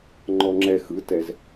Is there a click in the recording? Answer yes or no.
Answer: yes